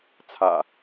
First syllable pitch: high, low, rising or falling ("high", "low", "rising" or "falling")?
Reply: low